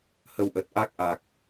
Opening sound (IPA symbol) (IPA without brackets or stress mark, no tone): h